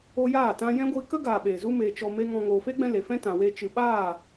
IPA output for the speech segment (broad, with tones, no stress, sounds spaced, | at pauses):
o˧ j aː˦˨ t ã˧ j ɛ̃˦ ɡʷ iː˧ k ə˦ ɡ aː˨ ɓ e˨ z u˦ m eː˧ t͡ʃ ɔ˧ m e˦ ŋ ɔ̃˧ ŋ oː˨ f e˦ ɡ͡b ɛ̃˧ l e˨ f ɛ̃˦ t ã˨ w eː˧ t͡ʃ ɨ˨ ɓ aː˦˨